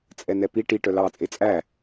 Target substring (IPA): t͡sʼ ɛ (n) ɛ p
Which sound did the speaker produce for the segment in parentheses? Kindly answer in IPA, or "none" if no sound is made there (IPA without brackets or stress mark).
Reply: n